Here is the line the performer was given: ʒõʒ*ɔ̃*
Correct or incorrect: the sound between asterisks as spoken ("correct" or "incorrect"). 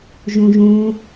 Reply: incorrect